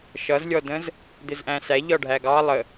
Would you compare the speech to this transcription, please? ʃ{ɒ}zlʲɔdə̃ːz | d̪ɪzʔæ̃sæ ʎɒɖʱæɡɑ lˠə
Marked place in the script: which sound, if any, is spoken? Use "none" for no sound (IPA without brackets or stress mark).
ʌ